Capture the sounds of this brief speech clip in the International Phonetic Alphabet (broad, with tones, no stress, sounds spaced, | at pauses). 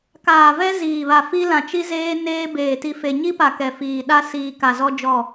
k aː˨ v ɛ˦ z iː˨ β a˨ f i˦ l ã˨ t͡ʃ i˦ z eː˦ n eː˦ b eː˨ t i˨ f e˨ ɲ i˦ p a˨ k ɛ˨ f iː˨ ɗ a˦ s iː˨ k a˨ z ɔ˦ d͡ʒ ɔ˦˨